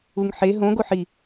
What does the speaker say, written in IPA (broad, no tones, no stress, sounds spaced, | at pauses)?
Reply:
u ŋ ħ e ɦ õ ɡ o ħ i